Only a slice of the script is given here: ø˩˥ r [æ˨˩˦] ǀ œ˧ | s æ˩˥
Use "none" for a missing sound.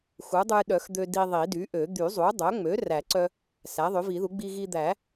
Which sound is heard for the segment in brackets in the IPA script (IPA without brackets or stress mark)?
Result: æ˨˩˦